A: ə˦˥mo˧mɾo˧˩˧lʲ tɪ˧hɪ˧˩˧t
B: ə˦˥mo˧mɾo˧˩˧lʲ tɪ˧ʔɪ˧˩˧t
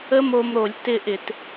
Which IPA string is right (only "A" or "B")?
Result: B